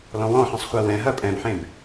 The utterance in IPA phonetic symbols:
lɔ̃wɔ̃ħɛ̃sˤ χʷɜwɛ̃ɦɐ pʼɛ̃bħẽb

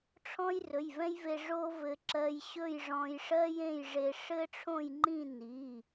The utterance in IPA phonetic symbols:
ʈ͡ʂʰɔ̃˥jrɵ˩˧˩jvɛ̃˥jve˧ ʐo˥ vɘ˧ ǁɜ˧j ɕɵ˥˧j ʐɔ̃˧jʂɜ˥jẽ˥˧jʐe˧ ʂɘ˥ʈ͡ʂʰõ˥˧jŋ͡ǃĩ˥˧ ni˩˧˩

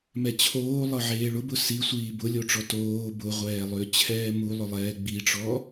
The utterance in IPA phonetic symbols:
mɛt͡ɕʰoː lˠɤʕeːɭʊbʊ sisʷiː bʊlʲoʈ͡ʂɔ toː bʊʁʷɛːlˠʏː t͡ɕʰɛːmulˠʊlˠɛː ɡ͡biʈ͡ʂɔ

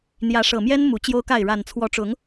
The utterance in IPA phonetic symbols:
n̪jä˨˦ʂɤ˨˩mjɛ˦n mu˨˦t͡ɕjo˦ʊ̯ka˥˨ɪ̯ ɻa˨˩nt͡sʰwɔ˨˦ʈ͡ʂʊ˨˦ŋ

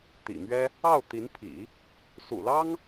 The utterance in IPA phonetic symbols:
t̪ḭ˨˩mɥɛ˥ | ɑ˥˩ʊ̯ t̪i˧˥npʰḭ˨˩˦ | sṵ˨˩lɑ˥ŋ

